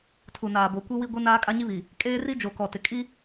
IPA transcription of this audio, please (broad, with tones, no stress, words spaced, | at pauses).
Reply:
tʰu˨naː˨bo˨ kʷi˦wi˦ɡʷi˦naː˦ kʼa˦ɲi˦βi˨ | kʼeː˦ri˦d͡ʒo˨ kɔ˨tɪ˨ kʼi˦